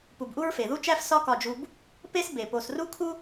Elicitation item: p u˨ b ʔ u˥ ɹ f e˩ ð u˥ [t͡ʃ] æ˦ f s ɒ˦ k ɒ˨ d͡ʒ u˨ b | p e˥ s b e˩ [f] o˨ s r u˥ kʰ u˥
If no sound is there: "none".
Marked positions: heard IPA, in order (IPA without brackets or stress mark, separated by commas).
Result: t͡ʃ, p